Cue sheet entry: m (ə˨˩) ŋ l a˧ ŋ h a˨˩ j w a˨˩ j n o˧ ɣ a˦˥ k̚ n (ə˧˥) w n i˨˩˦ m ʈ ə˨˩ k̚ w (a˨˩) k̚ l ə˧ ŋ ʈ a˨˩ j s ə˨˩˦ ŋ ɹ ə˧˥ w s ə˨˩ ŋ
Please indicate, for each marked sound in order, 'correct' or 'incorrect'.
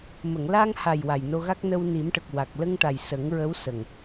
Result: incorrect, incorrect, correct

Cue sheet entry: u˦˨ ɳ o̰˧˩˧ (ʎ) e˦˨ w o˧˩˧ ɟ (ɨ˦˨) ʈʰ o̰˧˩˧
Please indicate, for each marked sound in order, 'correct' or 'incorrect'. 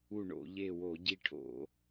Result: correct, incorrect

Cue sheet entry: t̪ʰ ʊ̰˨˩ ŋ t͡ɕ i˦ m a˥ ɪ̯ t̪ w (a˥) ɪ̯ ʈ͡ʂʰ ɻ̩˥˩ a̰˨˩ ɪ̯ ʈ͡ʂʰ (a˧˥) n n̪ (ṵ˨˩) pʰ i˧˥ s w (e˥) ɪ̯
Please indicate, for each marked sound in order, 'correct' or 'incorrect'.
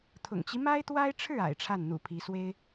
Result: correct, incorrect, correct, correct

